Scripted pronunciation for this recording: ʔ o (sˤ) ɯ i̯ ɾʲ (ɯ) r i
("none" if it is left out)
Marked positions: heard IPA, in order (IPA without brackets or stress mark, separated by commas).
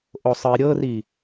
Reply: sˤ, ɤ